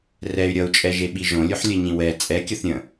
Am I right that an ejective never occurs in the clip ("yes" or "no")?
no